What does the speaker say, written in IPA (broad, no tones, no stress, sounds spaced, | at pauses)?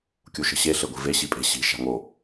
kʲ u ʃ ə̤ ɕ e ɬ e ɡʷ i̤ v e ɕ i pʼ e̤ ɕ i̤ ʃ a̤ ŋ o